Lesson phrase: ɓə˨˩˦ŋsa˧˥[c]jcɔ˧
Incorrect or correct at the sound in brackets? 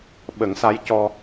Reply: incorrect: none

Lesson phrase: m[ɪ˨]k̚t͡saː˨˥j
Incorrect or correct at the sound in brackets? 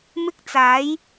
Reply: incorrect: ɪ˥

